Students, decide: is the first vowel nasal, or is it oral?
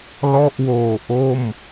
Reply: oral